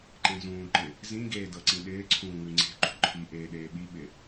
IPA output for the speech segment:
ǃ ẽ z ũː ǃ ɪ | z ĩ ɡ eː d ɤ ǀ ĩ ɗ ɪː ǀʰ ũː ŋ ʉ ŋ͡ǀ e̤ ǃ ṳ ǃʰ i ʔ eː ɗ eː ɓ i ɓ ɪ

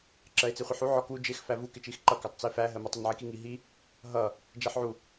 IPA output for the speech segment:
ǁ ɜ e̯ t͡s i χʷ i ħ u ʕ ɔ k u d͡ʒ ɪ x f æ v u k ɪ t͡ʃ i x ǃ ʌ k æ tˤ t͡s i f æ ɦ ɜ m ə tˤ ʊ n ʕ i k i ŋ i ɦ i | ɦ ʌ | d͡ʒ ɜ ħ ʕ u

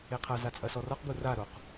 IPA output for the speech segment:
e qʰ ɐ z a t͡sʼ ɐ s ɔ r ɔ q ɡ u r a ɾ o q

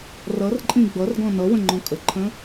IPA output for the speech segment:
r ʌ r ǃʼ ĩ ɡ͡b ʌ r ɡ ɔ̃ n ʌ w ə̃ ŋ͡ǃ ɔ̃ kʼ ə ǃʰ ə̃

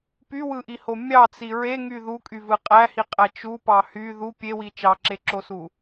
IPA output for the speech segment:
p y w ɯ ʔ i h o mʲ ɑ t͡s i ɹ e ŋ y ð u kʼ y v ɯ qʼ æ h i qʼ æ t͡ʃ u p ɑ h y ð u pʲ e w i t͡ʃ ɑ ǁ e ǁ o s u

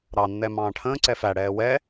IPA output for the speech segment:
ɾ ɑ nː ɛ m ɑ̃ː ʈʰ ə̃ː ǀ ɛ f æ ɽ ɛː w ɛ

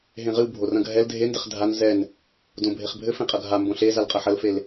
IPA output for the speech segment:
ɦ ẽ ʁ ɨ w bʱ o r ɐ̃ ɡʱ ɛ l dʱ e n d ɘ χ dʱ a n z ɛ n | d õ bʱ e χ bʱ ɘ f ẽ qʼ ɐ ɡʱ a m b õ ɬ e z a l qʼ ɐ ħ ɐ l f e l

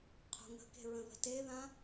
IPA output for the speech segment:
qʰ o̤ ŋ ə̤ k e̤ ɹ ə̃ ð ə̤ t e ð ã

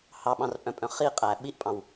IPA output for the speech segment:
h ɑ ɓ ɑ̃ r pʼ œ̃ pʼ œ̃ χ i qʼ æ ɓ i ʔ pʼ ɑ̃ w

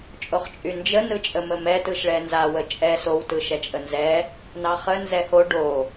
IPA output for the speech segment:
t͡ʃʼ o χ t͡ʃʼ y n d͡ʒ ə n ɯ t͡ʃʼ ə m ə m ɛ t ɯ ʃ ɭ ɛ n z a w ə t͡ʃʼ ɛ s o w t ɯ ʃ ɛ t͡ʃʼ ə n z ɛ | n ɑ χ ə n z ɛ h o ɖ o

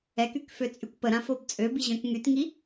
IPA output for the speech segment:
ɛ k y k f ø t͡sʼ y kʷ p ə ɾ ã f o b t͡sʼ ø b i ʑ œ̃ k ŋ y t ŋ i

